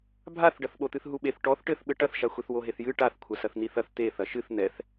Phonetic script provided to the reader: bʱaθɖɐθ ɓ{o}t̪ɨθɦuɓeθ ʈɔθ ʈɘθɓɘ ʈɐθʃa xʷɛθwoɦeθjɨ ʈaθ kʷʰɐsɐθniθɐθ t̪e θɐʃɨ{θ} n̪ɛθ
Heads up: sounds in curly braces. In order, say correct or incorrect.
correct, correct

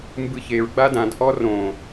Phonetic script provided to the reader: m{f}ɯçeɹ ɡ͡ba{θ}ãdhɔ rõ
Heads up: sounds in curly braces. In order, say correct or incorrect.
incorrect, incorrect

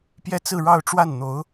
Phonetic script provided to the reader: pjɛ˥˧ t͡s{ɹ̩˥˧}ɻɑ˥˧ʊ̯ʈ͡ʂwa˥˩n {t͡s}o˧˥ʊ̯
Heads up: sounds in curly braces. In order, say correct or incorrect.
correct, incorrect

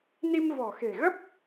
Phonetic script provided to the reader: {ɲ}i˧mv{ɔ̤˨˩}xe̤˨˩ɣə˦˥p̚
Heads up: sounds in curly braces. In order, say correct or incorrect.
incorrect, correct

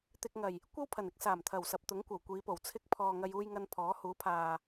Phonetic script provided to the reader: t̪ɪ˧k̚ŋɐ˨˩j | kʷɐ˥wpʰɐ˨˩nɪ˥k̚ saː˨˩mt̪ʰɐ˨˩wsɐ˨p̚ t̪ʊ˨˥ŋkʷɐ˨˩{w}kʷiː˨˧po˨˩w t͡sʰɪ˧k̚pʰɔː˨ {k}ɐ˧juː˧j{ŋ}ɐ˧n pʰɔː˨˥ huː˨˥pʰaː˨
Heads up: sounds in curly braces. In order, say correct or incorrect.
correct, incorrect, correct

